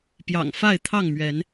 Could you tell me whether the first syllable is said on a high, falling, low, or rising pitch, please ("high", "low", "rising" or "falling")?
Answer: low